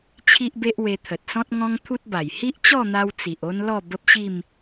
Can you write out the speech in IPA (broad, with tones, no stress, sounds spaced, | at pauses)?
t͡ɕʰ i˦ ʔ b e˦ ʔ w e˧ t̪ʰ ə˨ t̚ s ɔ̃˦ t̚ ŋ ɔ̃˦ ŋ t̪ʰ u˦ t̚ b a˨˩ j h i˦ ʔ t͡ɕ ɔ˥˧ n̪ a˧ w t͡s i˨ ʔ o˦ n l ɔ˥˧ b ə˦ p̚ ɕ i˥˧ m